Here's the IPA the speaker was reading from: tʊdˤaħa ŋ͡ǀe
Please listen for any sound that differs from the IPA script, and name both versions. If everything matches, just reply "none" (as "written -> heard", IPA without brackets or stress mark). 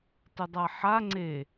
none